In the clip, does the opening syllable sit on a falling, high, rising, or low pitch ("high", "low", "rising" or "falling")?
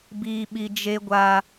high